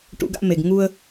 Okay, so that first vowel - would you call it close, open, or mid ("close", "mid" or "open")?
close